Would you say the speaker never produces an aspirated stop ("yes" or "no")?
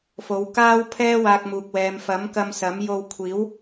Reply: no